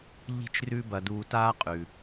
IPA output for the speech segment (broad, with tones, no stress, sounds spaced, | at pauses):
ʎ i̤˥ t͡ʃ r ʉ˥ b ɐ˧ d uː˧ t aː˥ qʼ ʉ˩